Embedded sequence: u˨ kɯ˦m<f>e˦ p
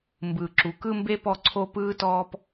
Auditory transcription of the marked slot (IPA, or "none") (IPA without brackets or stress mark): b